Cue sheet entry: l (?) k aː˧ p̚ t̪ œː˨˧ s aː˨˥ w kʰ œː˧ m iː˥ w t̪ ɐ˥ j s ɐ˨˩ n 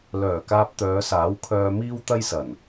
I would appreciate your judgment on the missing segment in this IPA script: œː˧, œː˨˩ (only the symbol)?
œː˨˩